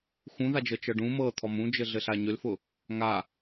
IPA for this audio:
x ũ ð a d͡ʒ ɤ t͡ʃ ɤ ɖ ũ m ɤ t̪ʰ ɔ m ũ d͡ʒ ɘ ɮ ɘ ɬ a ɲ ʏ l f ʊ | ŋ a

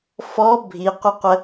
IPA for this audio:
f ɔ bʱ i qʷ ɪ qʷ ə

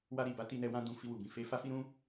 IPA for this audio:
w a˧ ɾ i˨ b a˨˦ t i˧ n ɛ˧ w ã˧ d ũ˧ f i˧ w u˨ b ĩ˨ f e˧ f a˦ f i˦ ɾ ũ˦

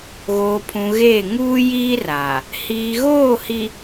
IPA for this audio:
ɣ oː˨ pʰ ũ˨ ɣ eː˦˨ ŋ uː˦ j iː˦ r a˨ | h iː˨ ɣ oː˦˨ h i˨

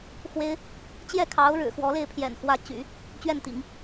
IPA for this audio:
x w e˥ ɪ̯ | t͡ɕ j ɛ˥˩ kʰ ɑ˧˥ ʊ̯ ɻ ɻ̩˨˩ x w ɔ˧˥ l e˥˩ ɪ̯ pʰ j ɛ̰˨˩ n x w ä˧˥ t͡ɕ y̰˨˩˦ | t͡ɕ ɥ ɛ˥˩ n t̪ ḭ˨˩˦ ŋ

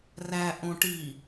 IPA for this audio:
r æ ʔ õ ʈ i

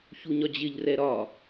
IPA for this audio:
ç u ɲ ɒ d͡ʑ ɪ ʎ r ɛ ɾ ɒ

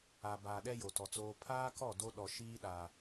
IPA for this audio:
a˨ b aː˨ ɗ ɛ˦ j o˨ t ɔ˨ t͡s oː˦ pʰ aː˦ k ɔ˦˨ d o˦ ɗ ɔ˨ ʃ iː˦ ɗ aː˨

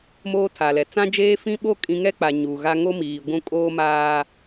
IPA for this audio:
m oː˦ tʰ a˨ l ɛ˨ t͡s ã˦ d͡ʒ eː˦ f ĩ˦ ɓ o˦ kʼ ĩ˦ ŋ ɛ˦ k͡p a˨ ɲ uː˨ ɣ a˦ ŋ o˦ m iː˨ ɡʷ ũ˦˨ kʼ oː˦ m aː˦

